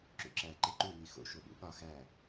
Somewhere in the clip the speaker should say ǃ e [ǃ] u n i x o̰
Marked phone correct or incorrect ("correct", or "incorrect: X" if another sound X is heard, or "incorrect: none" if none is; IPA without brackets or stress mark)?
correct